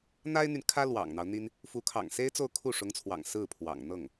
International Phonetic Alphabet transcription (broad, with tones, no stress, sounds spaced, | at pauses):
n̪ a˥ ɪ̯ n̪ y˨ n kʰ ä˥ l w ɑ̰˨˩ ŋ n̪ ɑ˦ ʊ̯ n̪ i˥ n | f u˧˥ kʰ ɑ̰˨˩ ŋ s e˥ ɪ̯ t͡s o˥˧ ʊ̯ kʰ u˥˩ ʂ ʊ˧˥ ŋ t͡sʰ w ɑ̰˨˩ ŋ s ɹ̩˥˩ pʰ w ɑ̰˨˩ ŋ n̪ ɤ˥˩ ŋ